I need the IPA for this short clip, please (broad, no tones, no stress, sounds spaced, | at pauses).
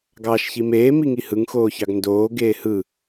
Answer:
ɡ ɑː ʃ ç i m eː m i ŋ i h ɯ ŋ x oː ç ɑ ɡ n d oː ɡ eː h ɯ